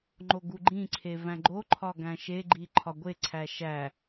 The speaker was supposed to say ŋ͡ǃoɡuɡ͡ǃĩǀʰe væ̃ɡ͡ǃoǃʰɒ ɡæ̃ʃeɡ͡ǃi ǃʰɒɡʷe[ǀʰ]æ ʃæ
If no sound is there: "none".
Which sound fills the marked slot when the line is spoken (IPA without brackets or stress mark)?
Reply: ǀʰ